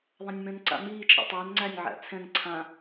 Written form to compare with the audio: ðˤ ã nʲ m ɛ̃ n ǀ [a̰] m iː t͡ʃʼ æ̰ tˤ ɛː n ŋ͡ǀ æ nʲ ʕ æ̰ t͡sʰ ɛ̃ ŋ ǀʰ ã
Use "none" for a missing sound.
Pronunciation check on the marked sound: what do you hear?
a̰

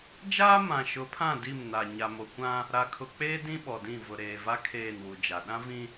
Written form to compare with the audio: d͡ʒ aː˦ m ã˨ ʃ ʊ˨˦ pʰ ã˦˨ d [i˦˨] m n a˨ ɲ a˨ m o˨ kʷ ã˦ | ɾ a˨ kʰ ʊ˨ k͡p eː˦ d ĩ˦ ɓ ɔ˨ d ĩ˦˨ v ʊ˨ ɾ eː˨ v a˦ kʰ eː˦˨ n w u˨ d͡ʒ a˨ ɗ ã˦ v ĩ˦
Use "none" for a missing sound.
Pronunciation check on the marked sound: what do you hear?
i˦˨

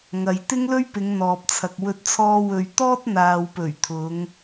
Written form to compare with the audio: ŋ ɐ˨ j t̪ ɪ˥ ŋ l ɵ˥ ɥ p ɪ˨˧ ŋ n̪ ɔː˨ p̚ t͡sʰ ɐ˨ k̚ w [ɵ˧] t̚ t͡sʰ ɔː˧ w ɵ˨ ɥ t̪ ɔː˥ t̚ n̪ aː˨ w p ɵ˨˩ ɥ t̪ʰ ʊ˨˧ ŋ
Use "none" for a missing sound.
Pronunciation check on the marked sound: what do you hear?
ɵ˧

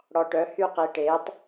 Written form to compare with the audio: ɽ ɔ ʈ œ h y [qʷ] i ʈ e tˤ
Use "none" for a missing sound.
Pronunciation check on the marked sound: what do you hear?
q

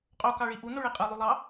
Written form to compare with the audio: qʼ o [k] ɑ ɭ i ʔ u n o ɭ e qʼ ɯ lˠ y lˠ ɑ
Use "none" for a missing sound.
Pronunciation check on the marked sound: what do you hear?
k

